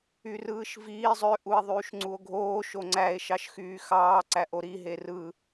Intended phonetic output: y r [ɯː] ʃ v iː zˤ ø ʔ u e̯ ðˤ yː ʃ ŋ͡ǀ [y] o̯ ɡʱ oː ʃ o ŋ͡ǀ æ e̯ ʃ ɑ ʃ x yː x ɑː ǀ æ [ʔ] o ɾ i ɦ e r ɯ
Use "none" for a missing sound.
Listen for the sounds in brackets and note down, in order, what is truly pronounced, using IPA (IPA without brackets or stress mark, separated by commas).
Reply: ɯː, u, ʔ